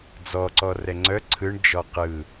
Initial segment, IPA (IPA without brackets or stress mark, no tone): d͡z